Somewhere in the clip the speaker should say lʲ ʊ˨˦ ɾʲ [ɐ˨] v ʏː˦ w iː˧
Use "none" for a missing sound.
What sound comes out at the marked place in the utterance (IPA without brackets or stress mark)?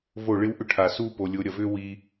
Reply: ɐ˨